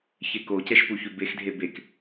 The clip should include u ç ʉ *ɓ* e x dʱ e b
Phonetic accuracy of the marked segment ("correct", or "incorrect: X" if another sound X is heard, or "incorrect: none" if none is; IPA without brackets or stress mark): incorrect: b